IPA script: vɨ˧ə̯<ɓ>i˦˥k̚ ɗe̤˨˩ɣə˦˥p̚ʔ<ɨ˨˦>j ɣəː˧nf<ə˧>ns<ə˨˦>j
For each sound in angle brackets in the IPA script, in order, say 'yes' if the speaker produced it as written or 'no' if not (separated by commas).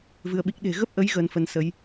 yes, no, yes, yes